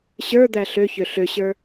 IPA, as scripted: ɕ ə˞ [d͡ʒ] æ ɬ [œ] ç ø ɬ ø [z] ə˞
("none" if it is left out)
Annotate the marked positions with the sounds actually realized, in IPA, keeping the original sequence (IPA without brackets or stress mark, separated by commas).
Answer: d̪, ø, ɕ